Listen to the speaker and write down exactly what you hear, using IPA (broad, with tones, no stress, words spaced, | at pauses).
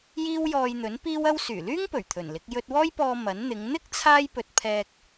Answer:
jiː˥wjɔː˧jn̪ɵ˨˥n piː˥wɐ˥w syː˨˩lyː˥ŋpɵ˨˩ɥ t̪ʰɵ˨˩nlɪ˨˥k̚ jɵ˧t̚wɔː˥jpɔː˧ mɐ˨˥nn̪ɪ˨˧ŋ n̪ɪ˥k̚ t͡sʰaː˥jpɵ˧t̚ pʰɛː˧k̚